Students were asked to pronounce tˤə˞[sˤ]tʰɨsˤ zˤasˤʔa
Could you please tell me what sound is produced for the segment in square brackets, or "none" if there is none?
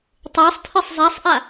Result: sˤ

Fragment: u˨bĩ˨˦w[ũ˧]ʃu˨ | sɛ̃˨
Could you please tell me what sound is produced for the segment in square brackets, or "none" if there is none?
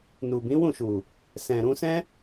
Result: ũ˦˨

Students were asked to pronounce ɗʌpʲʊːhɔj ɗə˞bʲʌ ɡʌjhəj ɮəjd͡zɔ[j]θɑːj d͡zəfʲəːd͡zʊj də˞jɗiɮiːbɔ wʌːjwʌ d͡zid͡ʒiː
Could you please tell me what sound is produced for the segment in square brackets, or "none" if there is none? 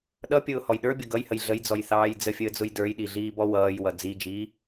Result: j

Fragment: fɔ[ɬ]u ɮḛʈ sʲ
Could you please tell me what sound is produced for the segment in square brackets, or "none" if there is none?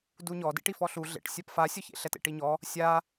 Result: ɬ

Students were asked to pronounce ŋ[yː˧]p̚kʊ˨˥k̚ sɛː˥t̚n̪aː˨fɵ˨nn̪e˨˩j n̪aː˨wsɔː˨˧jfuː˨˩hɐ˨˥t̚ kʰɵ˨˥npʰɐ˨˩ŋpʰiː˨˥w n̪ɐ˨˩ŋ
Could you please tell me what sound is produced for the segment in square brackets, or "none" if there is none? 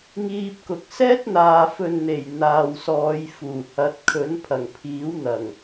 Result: iː˧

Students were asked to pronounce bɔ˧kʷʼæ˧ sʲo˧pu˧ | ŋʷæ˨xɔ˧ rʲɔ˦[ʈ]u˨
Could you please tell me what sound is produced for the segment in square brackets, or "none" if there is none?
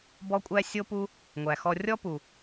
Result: p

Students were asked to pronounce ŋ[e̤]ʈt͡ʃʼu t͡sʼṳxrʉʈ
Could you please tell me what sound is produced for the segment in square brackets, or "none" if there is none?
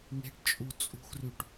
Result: e̤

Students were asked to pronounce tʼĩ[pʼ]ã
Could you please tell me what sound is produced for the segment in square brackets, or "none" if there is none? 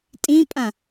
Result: pʼ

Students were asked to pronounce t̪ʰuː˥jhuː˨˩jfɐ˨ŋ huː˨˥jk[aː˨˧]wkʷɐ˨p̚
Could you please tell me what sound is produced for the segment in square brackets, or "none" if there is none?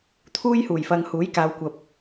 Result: aː˨˧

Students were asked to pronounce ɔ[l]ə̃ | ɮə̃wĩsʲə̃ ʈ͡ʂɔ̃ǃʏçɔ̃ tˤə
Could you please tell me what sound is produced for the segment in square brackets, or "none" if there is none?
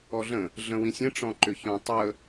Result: ɮ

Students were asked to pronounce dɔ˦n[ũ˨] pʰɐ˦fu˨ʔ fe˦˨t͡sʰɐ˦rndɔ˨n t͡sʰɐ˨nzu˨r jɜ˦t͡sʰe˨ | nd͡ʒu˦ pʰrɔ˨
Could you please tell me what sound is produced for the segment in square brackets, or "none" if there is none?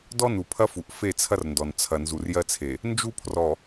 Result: u˨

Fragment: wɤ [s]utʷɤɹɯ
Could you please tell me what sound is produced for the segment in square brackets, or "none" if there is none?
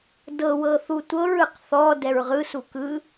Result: θ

